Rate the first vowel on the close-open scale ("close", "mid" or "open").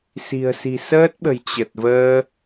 close